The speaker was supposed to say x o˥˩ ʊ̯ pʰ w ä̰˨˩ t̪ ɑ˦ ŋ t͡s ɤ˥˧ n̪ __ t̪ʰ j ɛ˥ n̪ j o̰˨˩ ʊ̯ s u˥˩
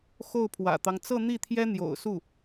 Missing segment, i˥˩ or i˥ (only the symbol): i˥˩